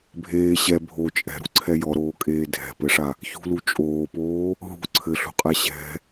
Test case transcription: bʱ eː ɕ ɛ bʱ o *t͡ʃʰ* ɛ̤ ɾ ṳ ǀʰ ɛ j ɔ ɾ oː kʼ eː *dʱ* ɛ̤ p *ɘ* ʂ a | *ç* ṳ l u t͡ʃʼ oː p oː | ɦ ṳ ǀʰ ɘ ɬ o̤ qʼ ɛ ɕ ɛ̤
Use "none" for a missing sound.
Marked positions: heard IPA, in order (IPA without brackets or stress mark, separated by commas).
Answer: t͡ʃʼ, dʱ, ɘ, ç